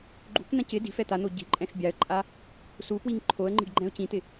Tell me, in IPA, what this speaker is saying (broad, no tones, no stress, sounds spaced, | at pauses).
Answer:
ɡ͡ǃ ṳ k n̪ ã c ɪ d i̤ f ɛ t̪ a n̪ o ɟ i̤ ǃʼ ɛ̃ x bʲ a ə̯ ǃʼ a | s u p w i ŋ ǃʰ o ə̯ ŋ͡ǃ i̤ ɖ ɡ͡ǃ ɛ̃ ʊ̯ c ĩ t̪ ɪ